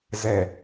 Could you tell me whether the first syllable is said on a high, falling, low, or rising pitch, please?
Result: low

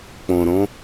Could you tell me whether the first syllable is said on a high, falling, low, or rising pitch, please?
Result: low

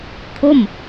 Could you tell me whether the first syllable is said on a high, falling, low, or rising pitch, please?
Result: falling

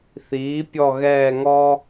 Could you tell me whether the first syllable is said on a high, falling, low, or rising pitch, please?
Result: rising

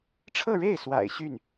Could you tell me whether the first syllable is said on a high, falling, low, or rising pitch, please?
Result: falling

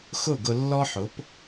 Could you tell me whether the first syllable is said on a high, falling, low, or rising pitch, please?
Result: falling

